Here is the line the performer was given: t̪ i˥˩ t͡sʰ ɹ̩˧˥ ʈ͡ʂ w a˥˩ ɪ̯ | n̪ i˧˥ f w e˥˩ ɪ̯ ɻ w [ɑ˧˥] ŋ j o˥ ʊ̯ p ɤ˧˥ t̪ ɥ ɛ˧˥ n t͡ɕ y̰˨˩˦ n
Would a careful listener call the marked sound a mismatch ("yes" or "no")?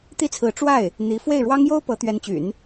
yes